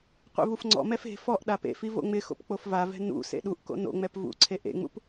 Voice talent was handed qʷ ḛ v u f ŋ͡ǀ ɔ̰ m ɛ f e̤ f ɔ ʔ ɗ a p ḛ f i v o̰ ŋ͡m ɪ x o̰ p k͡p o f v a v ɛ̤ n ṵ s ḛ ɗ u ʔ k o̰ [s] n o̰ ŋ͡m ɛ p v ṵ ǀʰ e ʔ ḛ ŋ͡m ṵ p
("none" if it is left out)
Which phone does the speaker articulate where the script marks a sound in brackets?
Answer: none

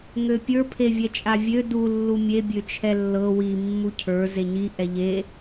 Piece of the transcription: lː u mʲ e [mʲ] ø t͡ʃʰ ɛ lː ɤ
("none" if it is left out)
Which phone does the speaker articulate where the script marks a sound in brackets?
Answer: bʲ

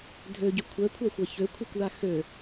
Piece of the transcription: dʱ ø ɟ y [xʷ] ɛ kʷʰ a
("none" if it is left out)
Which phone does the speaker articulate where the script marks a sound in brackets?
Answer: kʷʰ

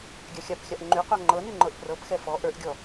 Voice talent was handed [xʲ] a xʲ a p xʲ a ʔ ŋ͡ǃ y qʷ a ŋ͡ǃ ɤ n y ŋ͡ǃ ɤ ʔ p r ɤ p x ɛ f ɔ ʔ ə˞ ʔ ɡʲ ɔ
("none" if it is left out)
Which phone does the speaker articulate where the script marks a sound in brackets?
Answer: ɡʲ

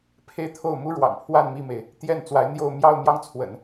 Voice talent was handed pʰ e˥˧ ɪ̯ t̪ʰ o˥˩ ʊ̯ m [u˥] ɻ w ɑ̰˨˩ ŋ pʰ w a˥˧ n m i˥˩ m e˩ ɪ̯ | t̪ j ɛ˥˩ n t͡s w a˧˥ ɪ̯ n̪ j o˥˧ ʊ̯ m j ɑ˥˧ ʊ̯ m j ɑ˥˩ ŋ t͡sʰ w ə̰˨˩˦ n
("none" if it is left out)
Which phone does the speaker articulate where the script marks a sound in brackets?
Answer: u˥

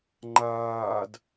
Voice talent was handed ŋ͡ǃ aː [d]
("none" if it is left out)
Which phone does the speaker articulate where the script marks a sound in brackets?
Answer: d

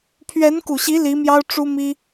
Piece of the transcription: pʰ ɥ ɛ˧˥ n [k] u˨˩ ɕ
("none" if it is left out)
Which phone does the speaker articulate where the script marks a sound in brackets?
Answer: k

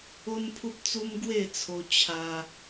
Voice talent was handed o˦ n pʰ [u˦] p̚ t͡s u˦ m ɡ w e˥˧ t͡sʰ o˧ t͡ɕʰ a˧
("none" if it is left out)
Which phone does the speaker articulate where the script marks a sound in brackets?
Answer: u˦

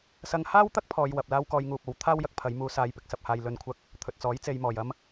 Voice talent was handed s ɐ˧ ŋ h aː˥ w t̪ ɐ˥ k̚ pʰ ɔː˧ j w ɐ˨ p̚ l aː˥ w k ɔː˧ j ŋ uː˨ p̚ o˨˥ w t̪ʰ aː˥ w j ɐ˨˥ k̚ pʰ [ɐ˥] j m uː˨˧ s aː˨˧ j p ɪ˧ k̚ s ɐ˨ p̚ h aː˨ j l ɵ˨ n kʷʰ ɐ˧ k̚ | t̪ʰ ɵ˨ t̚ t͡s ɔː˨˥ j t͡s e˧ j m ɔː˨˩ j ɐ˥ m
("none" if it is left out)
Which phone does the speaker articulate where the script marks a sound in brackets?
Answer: ɐ˨˧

